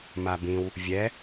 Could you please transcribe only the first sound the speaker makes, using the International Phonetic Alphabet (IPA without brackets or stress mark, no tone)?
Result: m